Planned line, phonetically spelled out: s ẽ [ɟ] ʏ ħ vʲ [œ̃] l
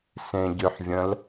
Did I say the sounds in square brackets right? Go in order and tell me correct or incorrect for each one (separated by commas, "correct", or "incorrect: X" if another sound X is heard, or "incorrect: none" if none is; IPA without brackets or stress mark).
correct, incorrect: ə̃